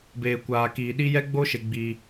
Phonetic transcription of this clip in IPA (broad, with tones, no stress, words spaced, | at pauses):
beː˨kʷaː˨ kiː˨ɗi˦ jɛ˦ɡ͡bo˦ʃe˨ ɡ͡bi˦